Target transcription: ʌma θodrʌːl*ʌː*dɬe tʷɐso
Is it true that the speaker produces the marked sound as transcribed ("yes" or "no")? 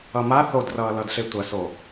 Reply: no